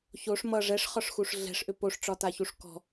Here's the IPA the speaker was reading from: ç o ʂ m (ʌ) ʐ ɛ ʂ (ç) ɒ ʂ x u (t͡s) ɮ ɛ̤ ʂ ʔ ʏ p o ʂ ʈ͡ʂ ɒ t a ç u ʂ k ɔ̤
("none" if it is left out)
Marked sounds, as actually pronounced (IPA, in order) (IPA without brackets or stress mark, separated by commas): ʌ, χ, ʂ